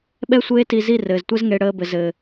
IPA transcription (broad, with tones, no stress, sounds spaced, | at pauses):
ɓ ɛ˦ sʷ eː˦ t i˧ z i˦˨ r ɘː˨ z tʷ ɛ˦ z ŋ e˧ ɽ əː˧ b ɘ˨ z ɘː˨